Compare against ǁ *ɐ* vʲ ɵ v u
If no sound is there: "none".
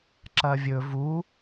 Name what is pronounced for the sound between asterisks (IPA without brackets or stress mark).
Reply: ɐ